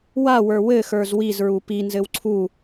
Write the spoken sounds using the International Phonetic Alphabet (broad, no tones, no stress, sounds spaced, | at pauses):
w a w ə˞ w ɘ x ə˞ z w i z ɹ u p i n z ɘ w ǀʰ u